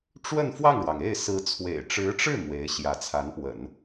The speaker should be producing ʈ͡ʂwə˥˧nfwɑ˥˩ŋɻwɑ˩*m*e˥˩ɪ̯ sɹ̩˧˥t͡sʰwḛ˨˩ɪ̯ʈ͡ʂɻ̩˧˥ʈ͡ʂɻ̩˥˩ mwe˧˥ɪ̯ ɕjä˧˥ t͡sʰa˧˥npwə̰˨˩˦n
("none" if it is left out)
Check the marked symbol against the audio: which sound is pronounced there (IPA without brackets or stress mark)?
ŋ